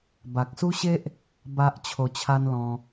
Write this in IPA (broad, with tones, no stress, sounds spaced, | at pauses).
b a˨ k̚ s u˦ ɕ e˦ ʔ | b a˦ ʔ t͡ɕʰ o˧ t͡ɕʰ a˦ n l ɔ̃˧